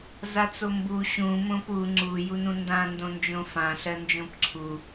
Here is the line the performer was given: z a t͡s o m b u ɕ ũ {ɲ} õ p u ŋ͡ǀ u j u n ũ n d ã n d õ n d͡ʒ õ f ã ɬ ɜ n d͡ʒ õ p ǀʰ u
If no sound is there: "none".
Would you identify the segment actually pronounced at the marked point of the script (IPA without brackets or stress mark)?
m